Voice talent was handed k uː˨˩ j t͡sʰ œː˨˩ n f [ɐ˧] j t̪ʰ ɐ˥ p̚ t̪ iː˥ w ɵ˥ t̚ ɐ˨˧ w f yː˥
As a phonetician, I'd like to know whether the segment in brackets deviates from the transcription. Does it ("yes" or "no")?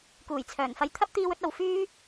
no